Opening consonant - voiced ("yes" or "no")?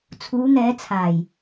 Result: no